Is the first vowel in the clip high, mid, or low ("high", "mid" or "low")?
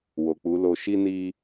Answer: mid